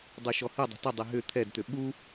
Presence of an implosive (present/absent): present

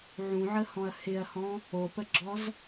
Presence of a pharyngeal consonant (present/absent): present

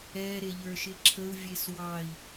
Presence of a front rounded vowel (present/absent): absent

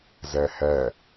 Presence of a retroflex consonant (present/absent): absent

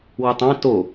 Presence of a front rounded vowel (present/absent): absent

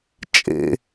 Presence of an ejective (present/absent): present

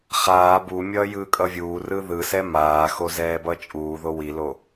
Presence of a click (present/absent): absent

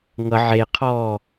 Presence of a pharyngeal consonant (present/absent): present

